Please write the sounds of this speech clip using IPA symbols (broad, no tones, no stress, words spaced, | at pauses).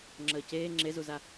ŋ͡ǁəːceː ŋ͡ǁezuza